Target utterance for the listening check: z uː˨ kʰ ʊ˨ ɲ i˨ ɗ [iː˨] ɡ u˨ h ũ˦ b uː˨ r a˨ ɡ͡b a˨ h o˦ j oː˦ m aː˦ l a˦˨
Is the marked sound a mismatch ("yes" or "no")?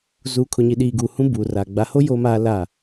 no